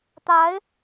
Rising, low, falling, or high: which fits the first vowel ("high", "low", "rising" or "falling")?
rising